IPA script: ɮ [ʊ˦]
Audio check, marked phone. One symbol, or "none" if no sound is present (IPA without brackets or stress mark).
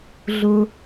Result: ʊ˦